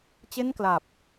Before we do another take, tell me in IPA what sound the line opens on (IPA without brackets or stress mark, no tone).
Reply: t͡ɕ